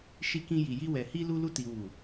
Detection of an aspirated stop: absent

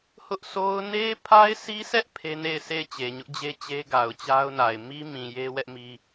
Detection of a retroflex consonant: absent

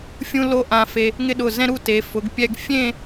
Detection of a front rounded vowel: absent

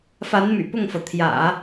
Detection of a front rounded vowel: present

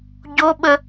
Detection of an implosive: present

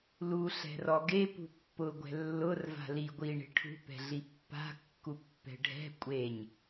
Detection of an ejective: present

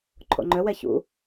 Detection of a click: present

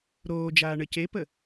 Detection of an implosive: absent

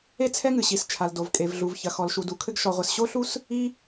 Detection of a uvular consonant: present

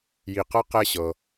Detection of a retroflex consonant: absent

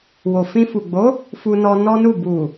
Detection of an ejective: absent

